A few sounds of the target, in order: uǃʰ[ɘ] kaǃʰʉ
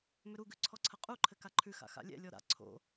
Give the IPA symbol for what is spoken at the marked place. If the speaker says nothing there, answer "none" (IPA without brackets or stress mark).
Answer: ɘ